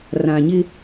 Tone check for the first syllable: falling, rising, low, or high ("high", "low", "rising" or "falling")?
low